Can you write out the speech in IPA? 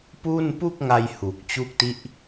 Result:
pu˥˩n pu˥˩k̚ŋa˧j hu˨˩k̚t͡ɕu˦˥k̚ti˦˥ʔ

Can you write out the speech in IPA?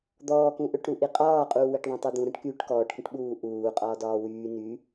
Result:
d̪ɔːkũʔɵʈɾu ʔiqʼɒːqʼuː weʈðˤũtˤyd̪ũ ɾə̃ʈ kyːʈkɔːʈkə̃ʈɓuː ʔuːqʼɒː dɒːwyː ny

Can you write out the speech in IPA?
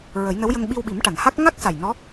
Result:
ɹə˨˩˦jnə˧˥wjə˧ŋ ɓi˧wɓi˨˩˦mʈa˨˩˨nha˦˥k̚ ŋa˦˥k̚sa˨˩j nɔ˧˥

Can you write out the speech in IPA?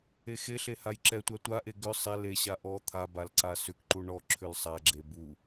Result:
exeɬe hajǁɛtʷa tʷaʔe ɡʏ sˤɛ leɕa ʔɔ t̪ʰa balǀasʏkǃu ɳɔ ǁʰʏlsˤaɡ͡ǁe bu

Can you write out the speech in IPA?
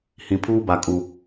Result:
hĩ˨pʰuː˦ba˨ kʼu˨

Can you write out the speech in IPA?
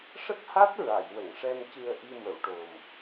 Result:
ʂə˦˥k̚ha˦˥t̚ ɹa˨˩˨jwə˨˩˨ŋʂɛ˧m cɨ˧ə̯ʔi˧mə˨˩˨wʈo˨˩m

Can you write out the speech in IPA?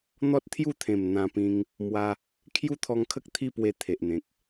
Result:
n̪ɔ˦t̚t̪ʰju˥˧t̪ʰẽ˨˩m n̪ã˧pĩ˧ŋ | mwa˧ | kʰju˦t̪ʰɔ˧ŋkʰə˦k̚ t̪ʰi˥˧pwe˧ t̪ʰe˨ʔn̪ẽ˨k̚

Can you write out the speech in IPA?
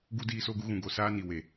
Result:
ɡu˦ diː˦so˦ɡu˦ ɣũ˨ɡo˨ saː˦ni˨we˨

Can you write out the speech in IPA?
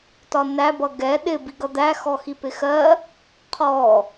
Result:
tɒnæ bʌɡɛ ɗɪ biɡʌd̪æ xɔxipɪxɜ | qʰɔ

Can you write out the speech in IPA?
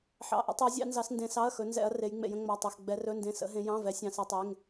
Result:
ħɑ̰˩˧˩ ʔə̰˩˧tˤɪ˩˧ɐ̯ zʲɑ̰˩˧nzɑ˩˧sndẽ˩˧sɑ˩˧˩ɐ̯ xɵ˩˧nzɛ̰˩˧ɐ̯ re˩˧jŋ͡mḛ˩˧jə̃˩˧ ŋ͡mɑ˩˧˩tˤɵ˩˧˩x ɡ͡bɛ˩˧rɵ˩˧˩ndẽ˩˧˩ sə̰˩˧ ɦẽ˩˧jɑ̃˩˧˩vɛ˩˧ sʲɑ̃˩˧sɛ˩˧tˤe˩˧˩ŋ

